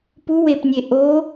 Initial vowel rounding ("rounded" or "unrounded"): rounded